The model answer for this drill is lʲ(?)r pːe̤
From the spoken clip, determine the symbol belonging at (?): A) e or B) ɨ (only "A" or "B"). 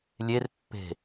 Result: A